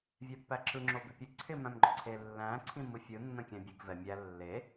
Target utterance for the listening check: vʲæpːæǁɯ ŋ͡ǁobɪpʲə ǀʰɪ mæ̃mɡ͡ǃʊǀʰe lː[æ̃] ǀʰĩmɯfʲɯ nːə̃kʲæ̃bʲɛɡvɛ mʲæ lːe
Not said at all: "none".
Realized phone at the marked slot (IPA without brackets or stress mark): æ̃